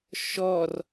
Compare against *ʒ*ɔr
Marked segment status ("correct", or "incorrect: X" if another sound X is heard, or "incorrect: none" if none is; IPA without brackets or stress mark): incorrect: ʃ